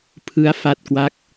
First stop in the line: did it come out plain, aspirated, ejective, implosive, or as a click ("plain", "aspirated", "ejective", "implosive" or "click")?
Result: aspirated